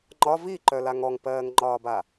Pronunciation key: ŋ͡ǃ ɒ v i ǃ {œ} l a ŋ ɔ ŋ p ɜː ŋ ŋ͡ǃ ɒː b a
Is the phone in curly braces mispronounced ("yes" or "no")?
no